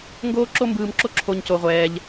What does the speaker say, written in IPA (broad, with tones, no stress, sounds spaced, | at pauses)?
ŋ ɡ oː˥ ǁ o˥ m b ɯː˧ m ǁ o˥ ǁʰ o˥ ɲ c o˧ ʁʷ ɛː˧ ʎ